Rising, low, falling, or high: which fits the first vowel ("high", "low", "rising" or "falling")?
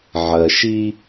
low